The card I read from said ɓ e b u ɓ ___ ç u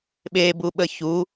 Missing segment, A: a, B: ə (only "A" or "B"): B